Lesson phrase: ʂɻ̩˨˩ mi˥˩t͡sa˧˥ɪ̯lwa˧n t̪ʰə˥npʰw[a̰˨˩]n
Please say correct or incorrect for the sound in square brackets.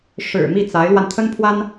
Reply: incorrect